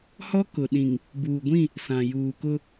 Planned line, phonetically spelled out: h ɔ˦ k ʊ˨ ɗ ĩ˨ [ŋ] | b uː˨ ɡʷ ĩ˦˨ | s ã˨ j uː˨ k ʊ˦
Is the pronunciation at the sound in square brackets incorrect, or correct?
correct